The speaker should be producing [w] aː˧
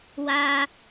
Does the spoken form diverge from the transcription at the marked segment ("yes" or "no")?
no